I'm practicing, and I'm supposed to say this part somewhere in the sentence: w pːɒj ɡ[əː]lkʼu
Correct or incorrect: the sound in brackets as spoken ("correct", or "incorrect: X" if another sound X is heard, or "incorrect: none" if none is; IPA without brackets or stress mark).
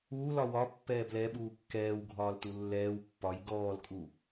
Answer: incorrect: ɔː